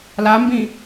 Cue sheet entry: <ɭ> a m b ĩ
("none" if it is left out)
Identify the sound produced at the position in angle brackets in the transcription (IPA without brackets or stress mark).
l